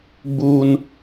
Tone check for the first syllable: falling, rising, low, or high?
high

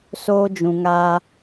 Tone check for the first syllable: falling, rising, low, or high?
high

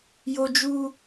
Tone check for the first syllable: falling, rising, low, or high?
high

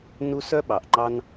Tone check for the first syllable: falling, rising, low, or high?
high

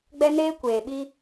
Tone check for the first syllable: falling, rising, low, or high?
high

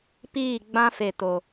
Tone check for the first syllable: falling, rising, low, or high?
falling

